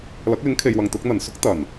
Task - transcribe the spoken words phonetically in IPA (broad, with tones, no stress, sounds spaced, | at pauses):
l ɐ˨˥ k̚ l ɪ˨˥ ŋ kʰ e˨ j w ɐ˨ ŋ t̪ ʊ˨˥ k̚ n̪ ɐ˨˩ n s ʊ˥ k̚ t̪ ɐ˨˩ n